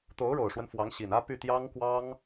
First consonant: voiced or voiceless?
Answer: voiceless